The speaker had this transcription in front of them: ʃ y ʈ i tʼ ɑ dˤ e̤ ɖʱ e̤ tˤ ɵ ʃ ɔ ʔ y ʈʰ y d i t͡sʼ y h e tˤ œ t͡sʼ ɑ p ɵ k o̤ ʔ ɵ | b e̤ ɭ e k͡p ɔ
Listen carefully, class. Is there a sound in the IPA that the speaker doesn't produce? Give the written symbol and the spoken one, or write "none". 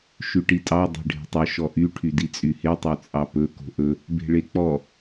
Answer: none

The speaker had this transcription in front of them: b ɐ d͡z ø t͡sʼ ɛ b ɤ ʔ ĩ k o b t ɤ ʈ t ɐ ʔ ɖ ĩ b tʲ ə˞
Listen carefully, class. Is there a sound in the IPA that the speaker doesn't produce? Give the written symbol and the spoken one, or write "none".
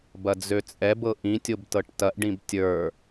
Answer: k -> tʲ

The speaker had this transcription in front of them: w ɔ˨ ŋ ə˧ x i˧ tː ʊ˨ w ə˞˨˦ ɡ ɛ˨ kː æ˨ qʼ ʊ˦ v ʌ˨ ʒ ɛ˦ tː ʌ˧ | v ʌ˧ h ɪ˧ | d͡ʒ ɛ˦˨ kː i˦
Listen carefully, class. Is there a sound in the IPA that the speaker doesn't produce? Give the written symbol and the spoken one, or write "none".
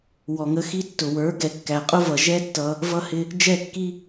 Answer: none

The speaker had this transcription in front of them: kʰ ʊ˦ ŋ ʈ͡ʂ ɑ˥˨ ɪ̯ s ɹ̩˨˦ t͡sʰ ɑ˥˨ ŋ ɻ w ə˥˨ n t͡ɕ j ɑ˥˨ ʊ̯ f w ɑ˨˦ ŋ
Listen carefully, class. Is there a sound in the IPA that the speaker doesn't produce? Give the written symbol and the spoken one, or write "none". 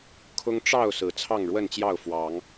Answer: ɪ̯ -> ʊ̯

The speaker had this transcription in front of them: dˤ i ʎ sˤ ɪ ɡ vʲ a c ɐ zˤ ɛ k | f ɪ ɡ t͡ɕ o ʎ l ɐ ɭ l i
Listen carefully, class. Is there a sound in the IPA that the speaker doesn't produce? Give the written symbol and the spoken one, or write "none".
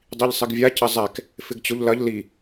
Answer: ɭ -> ʎ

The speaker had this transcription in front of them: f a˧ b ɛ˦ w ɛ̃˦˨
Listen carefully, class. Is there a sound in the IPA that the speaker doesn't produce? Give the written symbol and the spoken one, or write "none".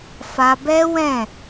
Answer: none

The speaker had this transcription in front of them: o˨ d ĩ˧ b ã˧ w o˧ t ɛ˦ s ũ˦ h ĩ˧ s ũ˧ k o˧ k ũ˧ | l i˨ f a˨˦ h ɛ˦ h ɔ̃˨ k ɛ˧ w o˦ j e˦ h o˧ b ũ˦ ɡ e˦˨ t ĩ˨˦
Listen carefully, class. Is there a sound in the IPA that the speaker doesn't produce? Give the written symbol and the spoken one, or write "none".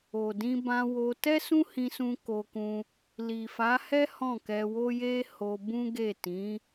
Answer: ɔ̃˨ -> ɔ̃˦˨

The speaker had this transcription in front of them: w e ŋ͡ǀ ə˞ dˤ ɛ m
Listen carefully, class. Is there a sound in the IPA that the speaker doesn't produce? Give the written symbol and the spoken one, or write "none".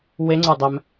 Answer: none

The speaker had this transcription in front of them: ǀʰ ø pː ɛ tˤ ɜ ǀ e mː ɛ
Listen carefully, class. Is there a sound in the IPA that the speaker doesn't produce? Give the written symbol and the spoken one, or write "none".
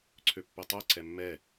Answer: e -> ɛ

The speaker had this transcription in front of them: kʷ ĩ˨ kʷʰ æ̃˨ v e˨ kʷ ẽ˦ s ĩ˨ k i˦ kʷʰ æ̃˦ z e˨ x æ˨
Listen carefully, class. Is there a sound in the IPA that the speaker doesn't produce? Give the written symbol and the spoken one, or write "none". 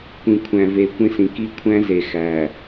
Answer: none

